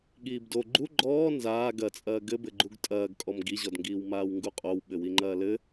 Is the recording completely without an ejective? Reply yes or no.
no